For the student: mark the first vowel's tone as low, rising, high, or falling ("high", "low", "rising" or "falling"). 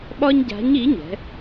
high